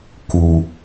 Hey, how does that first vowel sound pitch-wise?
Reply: low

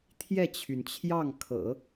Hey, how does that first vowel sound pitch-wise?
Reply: falling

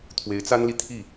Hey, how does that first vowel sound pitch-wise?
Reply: rising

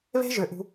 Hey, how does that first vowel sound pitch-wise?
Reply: high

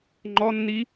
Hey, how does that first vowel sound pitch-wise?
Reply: high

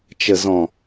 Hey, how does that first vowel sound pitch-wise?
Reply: low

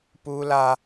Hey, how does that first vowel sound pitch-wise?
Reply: high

